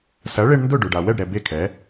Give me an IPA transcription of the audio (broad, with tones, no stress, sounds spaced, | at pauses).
s ɐ˩˥ ɭ e˧ ɳ n d ʊ˥˩ ɖ ø˩ ɖ a˩ w ɛ˥˩ ɖ ɾ ɛ˩ b e˥˩ kʰ ɛ˩˥